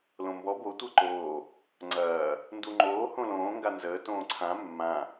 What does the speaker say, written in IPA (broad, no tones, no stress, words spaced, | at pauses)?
lõmbɔ bo tʷəːǃoː | ŋ͡ǀɐː | nduŋ͡ǃoː hõlõː ŋɡanzəː tõːǀʰã mːã